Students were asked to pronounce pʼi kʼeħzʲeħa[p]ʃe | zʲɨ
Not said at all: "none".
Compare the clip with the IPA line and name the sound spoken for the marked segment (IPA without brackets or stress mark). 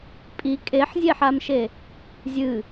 m